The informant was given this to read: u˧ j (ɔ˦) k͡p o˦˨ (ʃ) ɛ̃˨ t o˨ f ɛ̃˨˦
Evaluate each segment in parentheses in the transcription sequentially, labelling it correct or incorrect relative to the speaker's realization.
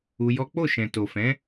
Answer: correct, correct

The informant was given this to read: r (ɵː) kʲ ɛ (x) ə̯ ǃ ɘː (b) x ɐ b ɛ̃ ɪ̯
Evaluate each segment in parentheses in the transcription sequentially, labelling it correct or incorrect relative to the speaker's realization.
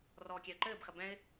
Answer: incorrect: ɔː, incorrect: none, correct

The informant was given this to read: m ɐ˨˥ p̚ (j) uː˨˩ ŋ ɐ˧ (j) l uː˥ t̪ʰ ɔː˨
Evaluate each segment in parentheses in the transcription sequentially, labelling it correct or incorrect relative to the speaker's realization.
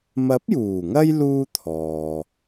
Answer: correct, correct

